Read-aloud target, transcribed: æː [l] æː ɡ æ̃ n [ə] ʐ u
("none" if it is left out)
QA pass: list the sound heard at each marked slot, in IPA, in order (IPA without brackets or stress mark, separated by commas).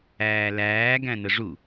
l, ə